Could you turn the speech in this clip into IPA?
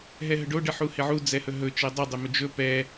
ɦ ɛ ɦ ə ɖ o ɖ ɘ ħ u h ɪ ʕ u d͡z ɛ h ɵ ɦ ɵ t͡ʃ e dˤ ɘ dˤ ɘ m ɵ d͡ʒ ɵ p ɛ

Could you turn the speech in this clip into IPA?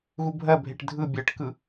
ɣ u bʱ ɜ bʱ e ʈ dʱ ɯ bʲ ɜ ʈ k ɯ

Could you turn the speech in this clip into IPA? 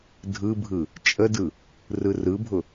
dʱ ɯ bʱ ɯ | t͡ʃʼ ə d ɯ | r ɯ r ɯ bʱ ʊ

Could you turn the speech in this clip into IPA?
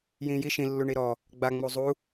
j ĩː j i ʃ ĩ lː u ɳ i ɾ ɔ | ɡ͡b a ŋ͡m u zˤ u

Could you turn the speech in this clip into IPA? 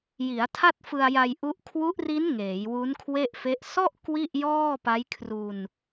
j i˩˦ a̯ tʰ a˥˩ t̚ f ɯ˧ a̯ j a˧ j ʔ u˦˥ ʔ kʰ w u˦˥ ʔ r i˦˥ n ŋ eː˩˦ j w u˦˥ n kʰ w e˥˩ ʔ f e˦˥ ʔ s ɔ˥˩ ʔ k w i˥˩ ʔ j ɔː˥˩ p a˦˥ j kʰ r u˧ n

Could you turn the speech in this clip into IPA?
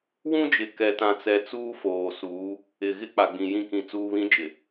w ũ˦ d͡ʒ ɪ˨ k ɛ˨ t ã˨ t͡s ɛ˨ t͡s uː˦ f oː˨ s uː˨˦ | ɪ˨ ɣ ɪ˦ k͡p a˨ ɡ͡b ĩ˨ j ĩ˦˨ k ĩ˨ t͡s uː˨ β ĩ˨˦ d͡ʒ ɪ˨

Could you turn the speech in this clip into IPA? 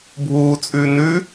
bʱ uː t͡sʼ ʉː n ʉ

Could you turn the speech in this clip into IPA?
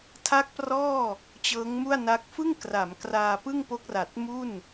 tʰ a˦˥ k̚ p r ɔː˥˩ | t͡ɕ ɤː˦˥ ŋ m u˥˩ a̯ n a˦˥ k̚ f ɯ˥˩ ŋ k r a˩˦ m k r aː˧ p ɯ˥˩ ŋ p o˦˥ k̚ r a˨˩ t̚ m u˥˩ n

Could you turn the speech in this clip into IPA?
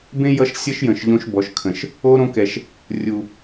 b ẽ˦ j ʌ˧ ʃ sʲ ʌ˦ ʃ j ə̃˨ ʃ ʎ õ˧ ʃ b ɔ˨ ʃ kʰ ə̃˨ ʃ | o˦ ɾ õ˦ k ɛ˨ ʃ | rʲ u˨

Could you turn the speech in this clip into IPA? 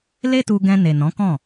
l e˦ t u˧ ɡ ɛ̃˧ n e˨ n ɔ̃˨˦ k ɔ̃˦˨

